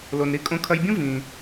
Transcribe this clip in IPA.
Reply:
l o˩ n ɾ i˧ kʼ õ˧ kʰ ɐ˧ j bʲ ũ˥ v ĩ˩

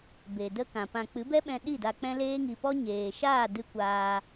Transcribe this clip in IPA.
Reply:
b e˨ d ə˦ k ã˨ p ã˧ k͡p ɨ˨˦ b ɛ˦ ɓ ɛ̃˧ ɗ i˦˨ d a˧ k͡p ɛ̃˦ l eː˦ ŋ i˧ p ɔ˦ ɲ eː˨ ʃ aː˦˨ d ɨ˦ kʷ aː˧

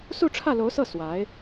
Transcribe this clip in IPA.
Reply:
s u˥˧ ʈ͡ʂʰ ä˥˩ l o˧˥ ʊ̯ s ɤ˥˩ s w a˧˥ ɪ̯

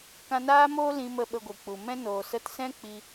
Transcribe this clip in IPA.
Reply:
k ã˧ n aː˦ m oː˦ l ĩ˧ m ə˧ ɓ ə˧ ɡʷ i˨ k͡p u˨ m ɛ̃˦ n oː˨ s ə˧ t s ɛ̃˦ k͡p i˧

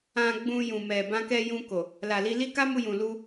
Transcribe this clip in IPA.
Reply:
ã˧ ɡ͡b ũ˧ j ũ˨ m ɛ˨ b ã˧ k ɛ˧ j ũ˧ k o˨ | l a˨ l i˧ l i˦ k a˦ m u˧ j ũ˨ l u˧

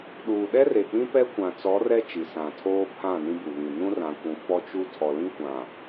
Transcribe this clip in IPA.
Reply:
ɗ uː˨ ɗ ɛ˦ r e˨ k͡p ĩ˦ p ɛ˦ kʷ ã˨ t͡s ɔ˨˦ r ɛ˦ t͡ʃ i˨ s ã˨ tʰ oː˦ pʰ ã˦˨ n ĩ˦ b u˨ β ĩ˨ n ũ˦ r ã˨ kʷ ũ˨ f ɔ˦ t͡ʃ u˦ tʰ ɔ˨ l ĩ˦ kʷ ã˨

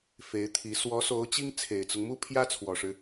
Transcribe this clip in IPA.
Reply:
f e˧˥ ɪ̯ t̪ʰ i˧˥ s w ɔ˧˥ s o˧˥ ʊ̯ t͡ɕ i˥ ŋ t͡sʰ e˨˩ ɪ̯ t͡s ʊ˦ ŋ m u˥ pʰ j ä˥ t͡sʰ w ɔ˨˩ ʂ ɻ̩˦

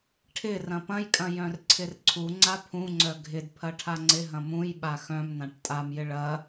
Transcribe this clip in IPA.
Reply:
ʈʰ ɪ r ɐ̃ p ɐ̃ j kʼ ɐ̃ j œ̃ r ǀʰ ɪ r ǀʰ u ŋ͡ǀ a pʰ ũ ŋ͡ǀ œ ɡʱ ɪ d pʰ ɐ ʈʰ a ŋ͡ǀ ɪ ɦ ɐ̃ m ũ j ɓ a x œ̃ m n ã ʈ tʼ a m j ɪ ɭ ɐ

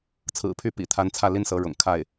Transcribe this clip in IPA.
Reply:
t͡sʰ ɹ̩˨˩ pʰ y˥˩ p ḭ˨˩ t̪ʰ a˧˥ n t͡sʰ ä˥˩ l i˥ n s ɤ˧˥ ɻ ʊ̰˨˩ ŋ kʰ a˥˩ ɪ̯

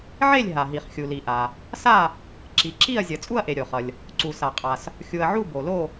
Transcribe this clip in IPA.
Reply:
ʕ e˥˨ lʲ ɦ a˩ ɦ i˩ χ xʲ u˩ l i˩ ʔ a˩ | s a˥˨ | ǁ i˩ ǁ i˥˨ ɐ̯ zʲ ʌ˩ t͡sʼ u˥˨ ɐ̯ ʔ e˩ ɾʲ o˩ χ ʌ˩ lʲ | ǀ u˩ s a˩ qʼ a˩ s | xʲ u˩ ɐ̯ ʕ u˥˨ b o˩ l o˥˨

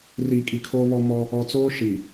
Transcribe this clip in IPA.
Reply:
r iː˨ kʼ i˨ kʰ oː˦ β ɔ˦ m ɔ˦ | ɔ˨ t͡s oː˦ ʃ i˨

